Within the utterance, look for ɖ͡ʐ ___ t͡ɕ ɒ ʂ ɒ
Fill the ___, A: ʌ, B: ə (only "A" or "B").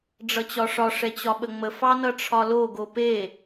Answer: A